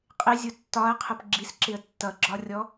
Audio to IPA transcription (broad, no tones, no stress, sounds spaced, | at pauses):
qʼ ɪ zʲ ʊ tː ɒ ə̯ qʰ ə p ɡ͡ǁ i s ǁ ɪ ə̯ tː ʌ ɡ͡ǁ ɒ rʲ ɔ